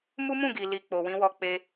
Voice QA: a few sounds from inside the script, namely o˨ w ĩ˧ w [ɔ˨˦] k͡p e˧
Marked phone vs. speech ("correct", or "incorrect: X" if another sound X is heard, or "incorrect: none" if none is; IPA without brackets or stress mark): incorrect: ɔ˧